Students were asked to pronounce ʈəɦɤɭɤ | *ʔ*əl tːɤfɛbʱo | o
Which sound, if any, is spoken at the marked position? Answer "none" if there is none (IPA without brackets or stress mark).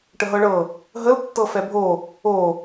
ɦ